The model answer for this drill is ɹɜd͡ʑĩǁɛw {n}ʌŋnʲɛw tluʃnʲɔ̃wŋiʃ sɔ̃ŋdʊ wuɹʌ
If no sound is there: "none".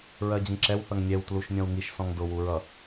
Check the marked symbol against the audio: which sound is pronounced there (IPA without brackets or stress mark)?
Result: θ